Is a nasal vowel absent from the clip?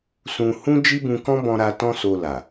no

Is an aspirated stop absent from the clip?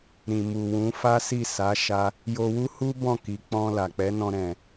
yes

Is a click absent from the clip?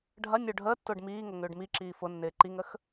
no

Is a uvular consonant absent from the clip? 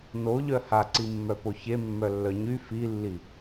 yes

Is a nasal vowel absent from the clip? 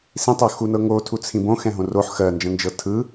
no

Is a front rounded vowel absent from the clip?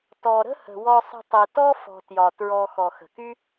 no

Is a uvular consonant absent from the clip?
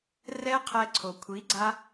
no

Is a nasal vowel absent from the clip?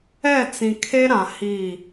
no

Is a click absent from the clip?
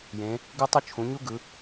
yes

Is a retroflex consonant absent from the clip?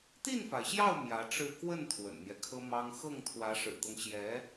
no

